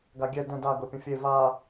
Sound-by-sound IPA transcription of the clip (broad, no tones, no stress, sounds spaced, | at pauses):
ɡ a ɡʲ ɛ d ə̃ d a ɡ ɤ pʲ ə̃ fʲ e v a